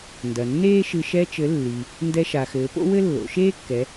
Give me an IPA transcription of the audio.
n d ɐ˩ nː eː˥ ʃ ɨ˧ ʃ ɛ˧ t͡ʃ ɘ˩˧ lː i˩ | n d ɛ˧ ʃ a˩ x ɘː˩˧ p o̰˥ w ɘ˥ lː o̰˩˧ ʃ eː˥ kː ɛ˩˧

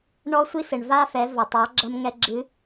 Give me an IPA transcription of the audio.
ɳ ɔ˧ sʷ i˧ s ɘ˩ ɳ v a˧ f ɛ˩˧ v ɐ˩ tˤ a˩˧ ɡ͡ǁ ɐ˧ m ŋ ɛ˧ ɡ͡ǁ ɨ˧˥

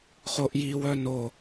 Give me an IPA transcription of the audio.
χ o ʔ j i w œ n o

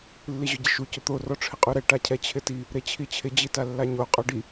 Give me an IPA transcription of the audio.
lː i ʑ ʊ ɟ ɪ ʃ u c ʊ t̪ o r ɔ ʈ͡ʂʰ ɪ qʼ u ɾ ɛ ʈ a cʰ ɛ t͡ɕʰ ɪ t i | ɾ e t͡ɕʰ i t͡ɕʰ ɪ d͡ʑ i t a lː a ɲ o qʼ ɔ ɖ i

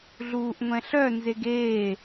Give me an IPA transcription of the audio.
ɮ uː ʔ ŋʷ ɛ̃ ɬ œ n z e ɡ eː

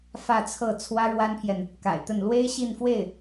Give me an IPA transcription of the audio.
f ä˥˧ t͡sʰ ɤ˥˩ t͡sʰ w ä˥ ɻ w a˥ n pʰ j ɛ˨ n | k a̰˨˩ ɪ̯ t̪ ə˥˩ n l w e˥ ɪ̯ ɕ i˥˧ n f w e˥˩ ɪ̯

